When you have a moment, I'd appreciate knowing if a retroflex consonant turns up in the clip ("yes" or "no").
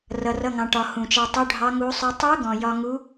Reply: yes